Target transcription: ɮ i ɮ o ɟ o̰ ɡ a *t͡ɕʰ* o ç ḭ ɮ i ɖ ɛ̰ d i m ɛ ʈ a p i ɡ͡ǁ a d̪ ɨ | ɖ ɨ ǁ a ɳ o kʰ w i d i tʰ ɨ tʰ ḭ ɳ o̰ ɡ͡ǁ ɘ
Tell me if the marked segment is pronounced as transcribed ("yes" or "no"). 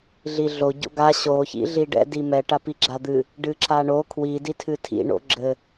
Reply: no